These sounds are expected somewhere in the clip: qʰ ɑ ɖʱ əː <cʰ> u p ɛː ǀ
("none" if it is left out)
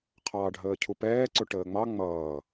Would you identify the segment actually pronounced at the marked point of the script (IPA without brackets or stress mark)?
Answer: cʰ